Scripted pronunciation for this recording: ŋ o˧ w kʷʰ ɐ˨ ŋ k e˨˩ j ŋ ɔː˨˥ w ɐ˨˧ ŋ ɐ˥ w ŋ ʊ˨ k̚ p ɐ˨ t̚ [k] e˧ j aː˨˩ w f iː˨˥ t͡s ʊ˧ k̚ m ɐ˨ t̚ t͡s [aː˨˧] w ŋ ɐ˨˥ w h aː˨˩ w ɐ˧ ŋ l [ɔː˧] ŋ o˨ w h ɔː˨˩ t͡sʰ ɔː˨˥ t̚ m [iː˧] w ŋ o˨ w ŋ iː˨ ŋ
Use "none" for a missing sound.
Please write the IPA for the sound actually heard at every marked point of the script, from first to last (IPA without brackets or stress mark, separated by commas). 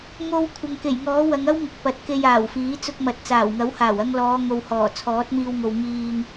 k, aː˨˩, ɔː˨˧, iː˧